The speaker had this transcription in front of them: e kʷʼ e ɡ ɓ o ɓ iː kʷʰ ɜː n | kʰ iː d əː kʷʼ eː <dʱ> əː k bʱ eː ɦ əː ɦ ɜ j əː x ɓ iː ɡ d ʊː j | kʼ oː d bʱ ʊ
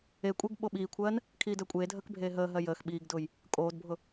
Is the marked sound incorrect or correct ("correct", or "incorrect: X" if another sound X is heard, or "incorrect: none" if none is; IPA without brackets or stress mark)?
correct